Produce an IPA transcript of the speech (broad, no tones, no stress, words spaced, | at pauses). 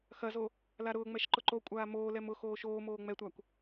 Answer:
xɐzo | laɾʊːŋ͡mɛʃ ǃʊǃokʷʼaː moːlɛm ʊ xoːʃoːmoː ŋ͡mɛtʷakʷ